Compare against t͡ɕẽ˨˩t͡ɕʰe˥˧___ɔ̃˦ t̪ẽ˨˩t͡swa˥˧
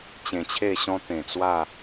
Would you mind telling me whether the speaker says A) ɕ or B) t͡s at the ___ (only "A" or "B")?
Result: A